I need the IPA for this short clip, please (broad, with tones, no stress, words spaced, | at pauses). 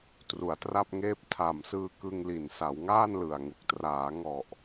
tru˩˦a̯tra˥˩p̚ŋeː˥˩p̚ tʰa˨˩msɯː˧ kɯ˧ŋli˨˩n sa˩˦wŋaː˥˩nlɯ˨˩a̯ŋu˨˩k̚ traː˩˦ŋɔ˨˩ʔ